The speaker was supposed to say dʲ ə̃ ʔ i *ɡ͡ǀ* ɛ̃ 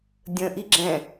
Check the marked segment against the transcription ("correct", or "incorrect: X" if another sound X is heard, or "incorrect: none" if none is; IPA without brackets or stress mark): incorrect: ɡ͡ǁ